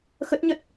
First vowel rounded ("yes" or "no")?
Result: no